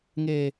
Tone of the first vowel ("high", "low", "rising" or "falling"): low